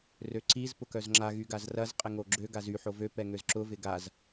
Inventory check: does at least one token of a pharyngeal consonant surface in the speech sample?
yes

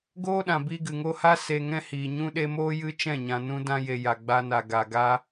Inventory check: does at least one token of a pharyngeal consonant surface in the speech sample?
no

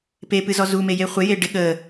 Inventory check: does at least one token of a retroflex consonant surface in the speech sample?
yes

